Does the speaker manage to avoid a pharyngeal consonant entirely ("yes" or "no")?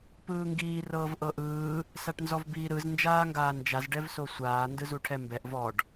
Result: yes